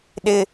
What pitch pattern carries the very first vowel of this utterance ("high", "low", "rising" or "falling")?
low